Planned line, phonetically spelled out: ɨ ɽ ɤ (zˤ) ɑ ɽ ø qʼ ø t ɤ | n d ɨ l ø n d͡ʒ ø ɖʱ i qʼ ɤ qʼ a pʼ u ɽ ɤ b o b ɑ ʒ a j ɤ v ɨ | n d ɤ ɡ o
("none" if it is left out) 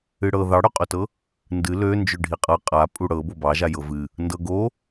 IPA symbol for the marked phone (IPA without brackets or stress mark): ð